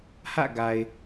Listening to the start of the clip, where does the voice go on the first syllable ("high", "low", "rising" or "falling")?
falling